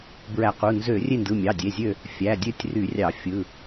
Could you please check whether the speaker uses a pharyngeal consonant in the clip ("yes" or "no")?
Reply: no